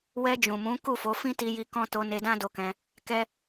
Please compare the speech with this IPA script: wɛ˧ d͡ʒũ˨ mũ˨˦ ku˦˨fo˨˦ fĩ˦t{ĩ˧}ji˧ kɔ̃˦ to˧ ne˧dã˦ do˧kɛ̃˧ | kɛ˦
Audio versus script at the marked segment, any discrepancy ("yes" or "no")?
yes